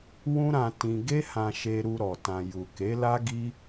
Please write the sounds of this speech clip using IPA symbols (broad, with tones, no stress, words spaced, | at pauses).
wũ˦ɾã˧ tĩ˧ ɡe˦hã˧ʃe˧ ɾu˧ɾɔ˨ tã˨ ju˨ ke˨˦la˦ ɡi˦